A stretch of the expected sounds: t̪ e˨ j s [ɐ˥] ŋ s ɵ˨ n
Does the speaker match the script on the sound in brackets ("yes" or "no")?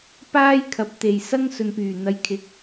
yes